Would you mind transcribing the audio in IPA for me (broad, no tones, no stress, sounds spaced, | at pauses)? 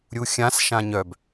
ɾʲ u xʲ ã s ʃ ã ɲ œ b